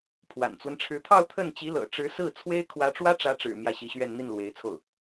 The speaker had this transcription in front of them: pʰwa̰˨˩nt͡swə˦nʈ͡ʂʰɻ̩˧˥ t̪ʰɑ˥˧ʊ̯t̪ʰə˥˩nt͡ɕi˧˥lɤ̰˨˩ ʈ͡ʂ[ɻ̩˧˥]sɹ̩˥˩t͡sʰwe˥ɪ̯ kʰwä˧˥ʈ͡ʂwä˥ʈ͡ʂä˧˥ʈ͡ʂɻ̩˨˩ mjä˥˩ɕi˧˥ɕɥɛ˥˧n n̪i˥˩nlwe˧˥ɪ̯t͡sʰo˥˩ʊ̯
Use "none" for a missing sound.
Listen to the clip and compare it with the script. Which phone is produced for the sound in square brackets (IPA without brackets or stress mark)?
ɻ̩˧˥